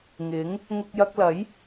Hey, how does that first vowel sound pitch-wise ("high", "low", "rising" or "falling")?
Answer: rising